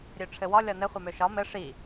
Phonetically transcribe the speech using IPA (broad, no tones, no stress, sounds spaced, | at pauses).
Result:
ɾʲ ø ʈ͡ʂʰ ɘ w ɒ lʲ ɒ n ɘ χʷ ɛ m ø ʃ ɒ m ɘ ʂ i